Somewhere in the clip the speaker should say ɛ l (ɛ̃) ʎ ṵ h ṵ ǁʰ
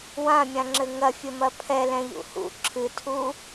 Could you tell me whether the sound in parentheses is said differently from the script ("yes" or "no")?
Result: no